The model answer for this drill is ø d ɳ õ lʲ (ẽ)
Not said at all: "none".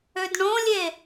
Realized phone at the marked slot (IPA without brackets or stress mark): e